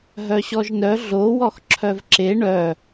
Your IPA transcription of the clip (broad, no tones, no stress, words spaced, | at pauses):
ɦœɕɔʒnœ ɮo wɔxǁʰœvǁe ɳœ